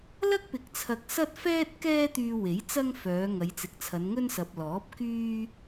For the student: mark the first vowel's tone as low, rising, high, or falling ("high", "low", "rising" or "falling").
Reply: high